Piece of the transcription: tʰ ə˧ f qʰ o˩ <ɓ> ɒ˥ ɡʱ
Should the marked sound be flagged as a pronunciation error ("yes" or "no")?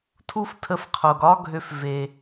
yes